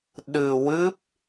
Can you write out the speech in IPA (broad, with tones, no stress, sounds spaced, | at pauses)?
ɗ ɨ˧ w ɨ˦˥ p̚